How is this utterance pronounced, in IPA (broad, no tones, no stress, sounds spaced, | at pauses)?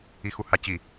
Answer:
i x u h a t͡ɕ i